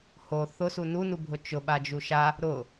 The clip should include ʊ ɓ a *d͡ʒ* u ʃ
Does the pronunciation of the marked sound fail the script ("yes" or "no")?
no